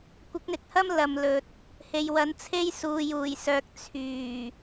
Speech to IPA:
kʷ ɪ˨˥ k̚ n̪ ɪ˨ k̚ h ɐ˥ m l ɐ˨ m l ɵ˨ t̚ | h e˨ j w ɐ˨˥ n t͡sʰ e˥ j s uː˨ j uː˨˩ j s œː˨ k̚ t͡sʰ yː˨˩

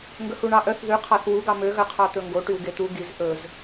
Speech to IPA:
ŋ ɡ ɵ h u ɳ ɑ ʔ œ θ ð ʉ qʰ ɑ θ w u ɡ ɑ m ø ɣ œ qʰ ɑ t̪ ɵ ŋ ɡ o ʈ y w ɡ e t̪ u ɡ i z ʔ ɵ z

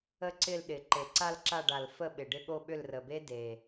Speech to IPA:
ə˦˥ ǀ ɪ˦˨ l ɗ ɪ˨˩ ǃ e˨˩ ǀ a˦˨ l ǁ a˦˨ ɖ a˨˩ l f ə˦˨ ɓ ɪ˨˩ ɖ ɪ˦˨ ɠ o˦˨ ɓ ʏ˦˨ l r ə˨˩ b e˦˥ d e˨˩

